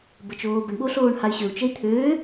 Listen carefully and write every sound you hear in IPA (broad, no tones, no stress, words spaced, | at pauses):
bət͡ʃoːbəɳɓo ɬoːɳhay̯ɕøu̯ t͡ʃəi̯t̪ʰøː